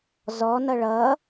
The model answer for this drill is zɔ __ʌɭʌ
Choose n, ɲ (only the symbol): n